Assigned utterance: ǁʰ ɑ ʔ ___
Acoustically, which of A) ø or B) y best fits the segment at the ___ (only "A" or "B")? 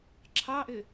A